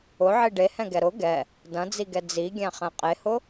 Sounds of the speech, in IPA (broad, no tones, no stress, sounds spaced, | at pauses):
ʊ ʕ i ɖ e h ɛ̃ ɡ ɛ ɾ ʊ ɡ ɛ | d ɐ̃ d͡z i ɡ ɛ d͡z i ɡʲ æ̃ χ ɛ̃ qʼ e h ʊ